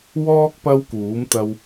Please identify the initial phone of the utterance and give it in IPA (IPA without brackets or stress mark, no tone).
w